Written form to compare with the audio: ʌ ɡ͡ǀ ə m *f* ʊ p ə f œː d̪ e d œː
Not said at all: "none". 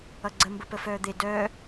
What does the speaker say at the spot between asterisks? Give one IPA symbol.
b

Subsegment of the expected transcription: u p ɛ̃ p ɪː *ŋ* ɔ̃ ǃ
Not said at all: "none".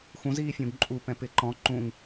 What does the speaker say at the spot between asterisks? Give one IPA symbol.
ǃ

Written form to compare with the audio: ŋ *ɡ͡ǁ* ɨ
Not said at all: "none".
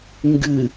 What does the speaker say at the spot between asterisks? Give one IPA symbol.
ɡ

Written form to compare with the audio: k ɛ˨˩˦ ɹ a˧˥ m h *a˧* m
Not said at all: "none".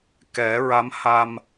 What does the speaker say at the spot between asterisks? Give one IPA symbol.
a˧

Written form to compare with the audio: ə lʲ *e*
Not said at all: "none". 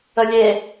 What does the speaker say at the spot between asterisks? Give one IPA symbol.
e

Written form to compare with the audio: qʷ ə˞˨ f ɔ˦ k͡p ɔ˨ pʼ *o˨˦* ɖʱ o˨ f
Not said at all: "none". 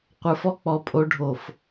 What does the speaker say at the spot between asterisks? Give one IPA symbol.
o˨˦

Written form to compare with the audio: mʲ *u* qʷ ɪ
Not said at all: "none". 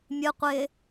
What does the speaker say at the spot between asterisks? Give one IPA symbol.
ɯ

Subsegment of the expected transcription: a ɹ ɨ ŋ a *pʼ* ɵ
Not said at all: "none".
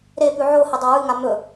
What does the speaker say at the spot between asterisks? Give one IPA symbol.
m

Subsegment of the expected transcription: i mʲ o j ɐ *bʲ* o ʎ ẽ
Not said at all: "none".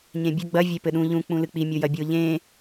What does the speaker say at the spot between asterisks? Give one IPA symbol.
bʲ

